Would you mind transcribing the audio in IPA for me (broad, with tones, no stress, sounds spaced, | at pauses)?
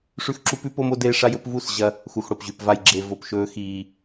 ʂ ʉ˦ x ǁ u˦ p ʉ˦ p o˦ m o˦ d eː˦ ʂ a˦ j ɵ˦ p v u˦˨ s ʑ ɐ˦ | x u˨ x ɽ o˨ p ʑ ʉ˨ p v a˨ j ɡ͡ǁ e˨ v o˨ p ʃ ɵː˦ x iː˦